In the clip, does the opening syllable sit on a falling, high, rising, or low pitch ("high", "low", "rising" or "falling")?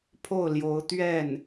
falling